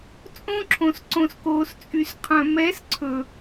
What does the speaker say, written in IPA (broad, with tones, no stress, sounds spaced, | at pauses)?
t͡sʼ õ˦ ǁʰ õ˨ s ǀ õ˨ s k oː˨ s t͡sʼ y˨ s qʰ œ̃˨ m ɛ˨˦ s ǀʰ ɵ˨